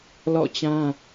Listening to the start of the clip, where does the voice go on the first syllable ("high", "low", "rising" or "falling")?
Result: falling